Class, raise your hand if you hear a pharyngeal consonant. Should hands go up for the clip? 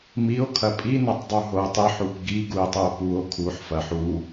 yes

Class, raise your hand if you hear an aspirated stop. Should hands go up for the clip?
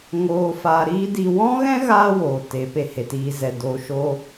no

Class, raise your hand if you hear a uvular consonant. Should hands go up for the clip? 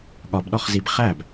yes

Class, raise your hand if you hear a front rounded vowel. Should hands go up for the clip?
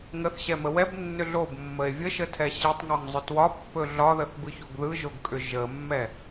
yes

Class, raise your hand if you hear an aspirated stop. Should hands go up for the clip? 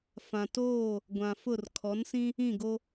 yes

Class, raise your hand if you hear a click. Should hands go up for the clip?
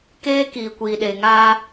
no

